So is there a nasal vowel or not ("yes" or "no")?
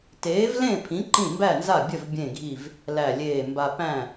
yes